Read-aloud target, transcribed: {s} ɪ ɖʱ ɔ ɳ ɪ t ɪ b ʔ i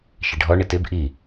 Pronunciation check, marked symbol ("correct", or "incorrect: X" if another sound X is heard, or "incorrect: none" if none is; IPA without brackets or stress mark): incorrect: ʃ